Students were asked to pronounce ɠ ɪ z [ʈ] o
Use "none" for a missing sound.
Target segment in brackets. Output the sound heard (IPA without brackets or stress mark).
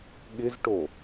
ʈ